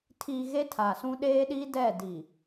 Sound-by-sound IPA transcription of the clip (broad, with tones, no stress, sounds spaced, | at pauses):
tʰ i˨ ɣ e˦ tʰ a˨ s ũ˦ ɗ eː˦ ɗ iː˦ d ɛ˦˨ d i˨